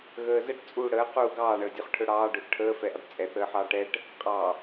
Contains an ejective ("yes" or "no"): yes